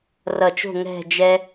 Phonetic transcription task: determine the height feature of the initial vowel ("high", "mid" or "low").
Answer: mid